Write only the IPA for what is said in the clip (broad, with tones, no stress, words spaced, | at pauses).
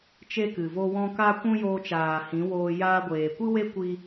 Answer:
t͡ʃe˦kɨ˨vo˦wɔ̃˦ ka˦ kʷũ˦joː˧t͡ʃaː˨hĩ˨˦ woː˧ jaː˧ɡʷeː˨kʷɨ˦we˦ kʷi˦